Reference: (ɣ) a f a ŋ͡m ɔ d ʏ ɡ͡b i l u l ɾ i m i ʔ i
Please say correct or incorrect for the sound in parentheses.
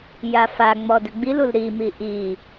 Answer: incorrect